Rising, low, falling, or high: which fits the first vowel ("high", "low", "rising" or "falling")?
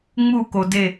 falling